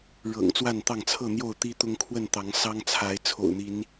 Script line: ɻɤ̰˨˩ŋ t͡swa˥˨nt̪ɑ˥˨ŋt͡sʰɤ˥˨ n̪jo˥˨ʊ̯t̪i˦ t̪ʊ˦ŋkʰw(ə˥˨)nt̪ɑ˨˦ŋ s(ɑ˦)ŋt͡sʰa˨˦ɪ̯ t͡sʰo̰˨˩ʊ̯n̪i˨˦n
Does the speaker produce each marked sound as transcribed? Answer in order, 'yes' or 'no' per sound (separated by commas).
yes, yes